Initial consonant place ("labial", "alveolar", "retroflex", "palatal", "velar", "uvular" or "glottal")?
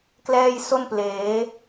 velar